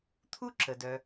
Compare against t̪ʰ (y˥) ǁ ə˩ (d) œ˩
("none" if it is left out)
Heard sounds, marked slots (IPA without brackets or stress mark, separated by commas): u˥, d